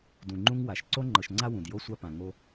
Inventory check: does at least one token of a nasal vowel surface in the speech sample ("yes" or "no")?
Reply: yes